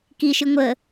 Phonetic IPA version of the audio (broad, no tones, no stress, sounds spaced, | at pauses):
k i ʃ ɨ ŋʷ ə